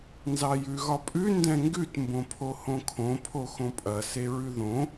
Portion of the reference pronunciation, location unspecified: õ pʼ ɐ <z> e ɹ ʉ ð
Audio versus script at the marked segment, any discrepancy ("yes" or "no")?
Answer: yes